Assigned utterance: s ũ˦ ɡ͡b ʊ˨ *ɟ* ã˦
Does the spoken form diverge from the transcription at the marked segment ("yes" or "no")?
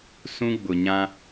yes